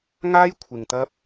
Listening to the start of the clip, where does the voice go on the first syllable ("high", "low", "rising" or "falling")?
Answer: high